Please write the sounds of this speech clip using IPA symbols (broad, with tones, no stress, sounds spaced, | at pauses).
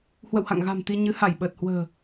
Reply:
h w ə̰˧˨ w h a̰˧˨ ŋ ɣ a̤˨˩ m t̪ i˧ ɲ ɨ˨˦ h a˧˩ j ɓ əː˨˩ t̚ h w ə̤ː˨˩